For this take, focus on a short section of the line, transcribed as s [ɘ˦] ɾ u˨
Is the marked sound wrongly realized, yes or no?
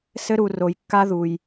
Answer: no